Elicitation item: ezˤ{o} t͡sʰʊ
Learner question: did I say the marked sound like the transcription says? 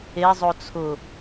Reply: yes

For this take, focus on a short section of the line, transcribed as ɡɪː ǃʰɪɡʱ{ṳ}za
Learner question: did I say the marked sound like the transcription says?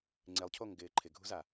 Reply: yes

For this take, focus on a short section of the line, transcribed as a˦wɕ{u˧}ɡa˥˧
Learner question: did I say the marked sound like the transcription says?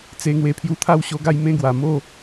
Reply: no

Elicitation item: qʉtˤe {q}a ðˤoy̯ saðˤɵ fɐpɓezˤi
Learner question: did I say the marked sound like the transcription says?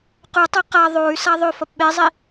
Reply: yes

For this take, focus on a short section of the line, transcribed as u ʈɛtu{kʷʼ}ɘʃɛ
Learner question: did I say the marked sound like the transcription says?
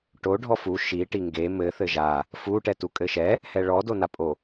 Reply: no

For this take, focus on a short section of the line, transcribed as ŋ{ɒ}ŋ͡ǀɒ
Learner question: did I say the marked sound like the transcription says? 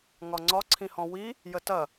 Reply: yes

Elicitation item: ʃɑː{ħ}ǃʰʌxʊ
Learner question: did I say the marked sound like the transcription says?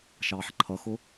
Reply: yes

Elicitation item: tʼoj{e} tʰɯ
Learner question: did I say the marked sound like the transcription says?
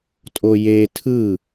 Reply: yes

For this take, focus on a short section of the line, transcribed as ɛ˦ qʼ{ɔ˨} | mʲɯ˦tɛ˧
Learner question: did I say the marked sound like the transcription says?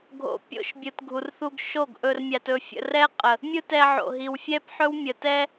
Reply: no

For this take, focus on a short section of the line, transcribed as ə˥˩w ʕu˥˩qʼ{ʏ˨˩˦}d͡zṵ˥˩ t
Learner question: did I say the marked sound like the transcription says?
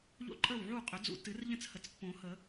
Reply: yes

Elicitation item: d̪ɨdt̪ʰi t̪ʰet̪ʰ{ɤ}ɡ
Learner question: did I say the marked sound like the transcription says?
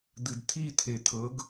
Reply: yes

